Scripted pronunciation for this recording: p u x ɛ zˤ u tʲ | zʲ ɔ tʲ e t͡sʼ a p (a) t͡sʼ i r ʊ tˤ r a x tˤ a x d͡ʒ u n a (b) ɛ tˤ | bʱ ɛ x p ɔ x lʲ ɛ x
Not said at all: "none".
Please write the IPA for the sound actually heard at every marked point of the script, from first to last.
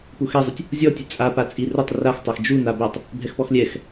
a, b

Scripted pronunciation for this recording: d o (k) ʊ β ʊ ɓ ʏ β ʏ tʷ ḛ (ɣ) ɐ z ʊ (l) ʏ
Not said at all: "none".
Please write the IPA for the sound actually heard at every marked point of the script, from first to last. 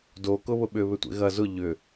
k, ɣ, ʎ

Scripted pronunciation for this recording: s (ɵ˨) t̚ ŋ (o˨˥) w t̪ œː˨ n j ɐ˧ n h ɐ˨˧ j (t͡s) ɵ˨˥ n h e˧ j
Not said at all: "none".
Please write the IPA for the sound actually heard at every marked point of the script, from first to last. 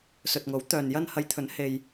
ɵ˨, o˨˥, t̪ʰ

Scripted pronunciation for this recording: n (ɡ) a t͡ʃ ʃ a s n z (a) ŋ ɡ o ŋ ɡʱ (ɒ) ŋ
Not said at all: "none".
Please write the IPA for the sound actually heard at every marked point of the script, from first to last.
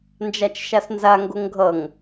d͡ʒ, a, ʌ

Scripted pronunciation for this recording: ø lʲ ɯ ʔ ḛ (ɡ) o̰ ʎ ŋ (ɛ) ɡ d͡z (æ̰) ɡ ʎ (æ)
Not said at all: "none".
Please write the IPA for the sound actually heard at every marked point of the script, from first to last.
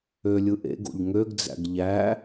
ɡ, ø, æ̰, æ

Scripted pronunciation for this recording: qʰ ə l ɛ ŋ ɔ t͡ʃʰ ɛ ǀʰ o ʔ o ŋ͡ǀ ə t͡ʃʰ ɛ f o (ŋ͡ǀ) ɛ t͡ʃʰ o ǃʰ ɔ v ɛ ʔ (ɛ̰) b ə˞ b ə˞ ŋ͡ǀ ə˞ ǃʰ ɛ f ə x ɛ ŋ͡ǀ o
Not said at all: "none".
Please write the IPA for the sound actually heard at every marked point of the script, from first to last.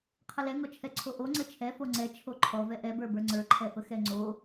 ŋ͡ǀ, ɛ

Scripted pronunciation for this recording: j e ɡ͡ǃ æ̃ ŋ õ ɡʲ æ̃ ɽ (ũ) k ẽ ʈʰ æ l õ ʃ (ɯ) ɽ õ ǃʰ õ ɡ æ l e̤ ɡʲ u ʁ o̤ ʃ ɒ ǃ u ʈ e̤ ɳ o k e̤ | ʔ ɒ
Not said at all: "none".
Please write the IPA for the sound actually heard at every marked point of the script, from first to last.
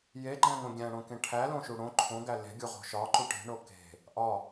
õ, u

